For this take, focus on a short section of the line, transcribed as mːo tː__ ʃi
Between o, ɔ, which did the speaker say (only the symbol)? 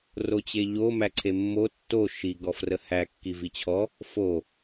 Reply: o